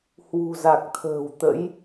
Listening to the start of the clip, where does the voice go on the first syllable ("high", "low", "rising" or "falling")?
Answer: low